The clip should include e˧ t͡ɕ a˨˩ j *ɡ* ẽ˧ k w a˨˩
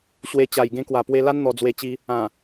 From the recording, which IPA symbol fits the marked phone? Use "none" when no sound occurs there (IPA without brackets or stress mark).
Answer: ɡ